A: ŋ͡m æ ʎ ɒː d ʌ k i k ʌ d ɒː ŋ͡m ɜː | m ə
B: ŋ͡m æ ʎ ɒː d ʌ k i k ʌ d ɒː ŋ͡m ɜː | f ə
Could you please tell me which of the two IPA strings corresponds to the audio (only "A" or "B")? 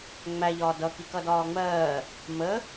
A